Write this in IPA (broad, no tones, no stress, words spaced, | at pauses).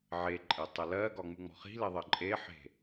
ʕeǃʼetˤɤ lɜɡɒŋ͡muŋ͡mɔ̤ χi̤leðˤɜ ǃʼeħe̤